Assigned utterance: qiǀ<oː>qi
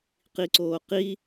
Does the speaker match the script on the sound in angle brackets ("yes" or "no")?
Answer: yes